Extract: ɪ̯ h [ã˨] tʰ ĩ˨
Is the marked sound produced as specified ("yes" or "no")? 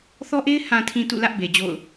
yes